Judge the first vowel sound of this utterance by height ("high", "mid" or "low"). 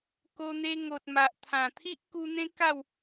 mid